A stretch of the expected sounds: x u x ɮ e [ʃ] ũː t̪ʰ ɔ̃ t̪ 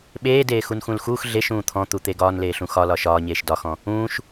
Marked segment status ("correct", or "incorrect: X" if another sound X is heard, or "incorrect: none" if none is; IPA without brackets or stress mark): correct